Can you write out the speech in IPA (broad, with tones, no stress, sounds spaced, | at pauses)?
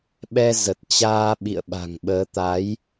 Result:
ɓ ɛ˧ z ə˨˩ t̚ t͡ɕ aː˧ ɓ ḭ˧˨ ə̯ ɓ a̤˨˩ ŋ ɓ əː˨˦ t̪ a˨˦ j